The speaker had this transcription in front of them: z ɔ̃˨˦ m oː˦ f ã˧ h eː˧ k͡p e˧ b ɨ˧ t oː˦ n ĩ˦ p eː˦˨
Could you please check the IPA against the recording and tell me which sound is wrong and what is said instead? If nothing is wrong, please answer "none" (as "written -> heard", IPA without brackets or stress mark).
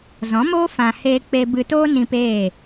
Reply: none